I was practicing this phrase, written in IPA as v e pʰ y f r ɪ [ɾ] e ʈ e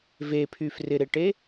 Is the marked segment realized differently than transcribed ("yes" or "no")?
no